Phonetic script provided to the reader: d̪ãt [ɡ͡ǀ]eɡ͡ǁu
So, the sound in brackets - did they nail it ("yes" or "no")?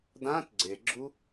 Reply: yes